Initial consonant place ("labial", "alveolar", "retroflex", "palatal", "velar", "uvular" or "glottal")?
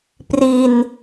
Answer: labial